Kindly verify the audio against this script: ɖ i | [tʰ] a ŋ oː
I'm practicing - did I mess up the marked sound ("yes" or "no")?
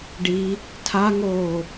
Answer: no